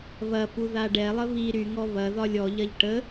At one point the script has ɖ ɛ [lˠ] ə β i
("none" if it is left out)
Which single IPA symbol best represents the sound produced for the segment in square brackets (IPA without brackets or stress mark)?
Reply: lˠ